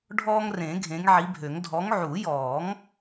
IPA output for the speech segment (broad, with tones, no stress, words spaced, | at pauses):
ɖʱɔː˦ŋrẽ˨˩˦ ɡʱẽ˨˦ŋʕi˨˦bʱø˨˩˦ŋ dʱɔ˨˦ŋʕu˨˩˦jɔː˨˩˦ŋ